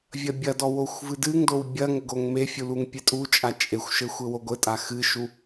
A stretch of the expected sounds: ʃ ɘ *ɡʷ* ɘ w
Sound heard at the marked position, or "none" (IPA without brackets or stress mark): xʷ